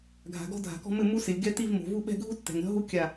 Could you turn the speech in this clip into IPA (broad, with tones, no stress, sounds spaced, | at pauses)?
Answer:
ɡʱ a̤˨ ɡ ɔ̤˦ dʱ a̤˨ k ɔ̤˦ m ɘ˦˨ m u˦ s ɪ˨ lʲ ɡ ɛ˦ t i˦˨ v m o̤˨ v u˦˨ ɓ ɛ̤˦˨ ɡʱ u˦ tː ɛ̤˨ ŋ ɾʲ ɔ̤˦ ɦ u˦ kʲ a˦˨